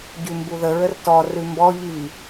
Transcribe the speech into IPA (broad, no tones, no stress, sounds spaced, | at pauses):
ɟ ʉ m b u ð ə ɹ ə r t ɔ r ʉ m b ɔ ʎ i